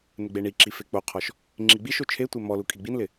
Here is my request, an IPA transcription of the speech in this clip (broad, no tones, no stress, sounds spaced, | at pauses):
n ɪ ɡ͡b e ɳ i ǁ i f e k͡p o qʰ ɔ ʃ | ŋ͡ǁ i ɡ͡b i ʃ o t͡ʃʰ e tʷ e m ɔ l u kʼ i ɡ͡b i n l ɪ